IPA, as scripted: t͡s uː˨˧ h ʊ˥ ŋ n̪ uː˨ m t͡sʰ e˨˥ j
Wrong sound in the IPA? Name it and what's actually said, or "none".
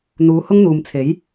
t͡s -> n̪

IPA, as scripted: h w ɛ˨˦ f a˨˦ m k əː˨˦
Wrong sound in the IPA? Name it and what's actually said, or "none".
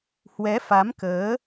none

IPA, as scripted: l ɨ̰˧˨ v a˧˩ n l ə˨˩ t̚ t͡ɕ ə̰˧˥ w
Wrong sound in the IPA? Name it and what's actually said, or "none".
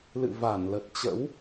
none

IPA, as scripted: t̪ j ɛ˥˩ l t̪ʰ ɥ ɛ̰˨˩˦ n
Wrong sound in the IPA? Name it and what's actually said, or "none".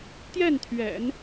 l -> n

